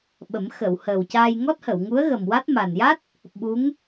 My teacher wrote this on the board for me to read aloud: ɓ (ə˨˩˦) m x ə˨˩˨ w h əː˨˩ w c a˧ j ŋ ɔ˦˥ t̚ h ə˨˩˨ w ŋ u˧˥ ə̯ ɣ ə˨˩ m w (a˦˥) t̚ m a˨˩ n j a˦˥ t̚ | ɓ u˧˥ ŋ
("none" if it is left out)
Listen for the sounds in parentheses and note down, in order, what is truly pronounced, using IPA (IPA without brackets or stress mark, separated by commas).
ə˨˩˦, a˦˥